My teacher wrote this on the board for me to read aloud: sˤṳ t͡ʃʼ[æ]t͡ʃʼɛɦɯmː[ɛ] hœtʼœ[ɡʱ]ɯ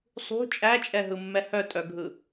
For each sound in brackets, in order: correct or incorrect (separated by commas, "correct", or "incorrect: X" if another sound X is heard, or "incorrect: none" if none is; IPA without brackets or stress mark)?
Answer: correct, correct, correct